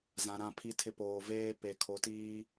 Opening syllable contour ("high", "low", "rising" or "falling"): low